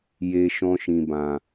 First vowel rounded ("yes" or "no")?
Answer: no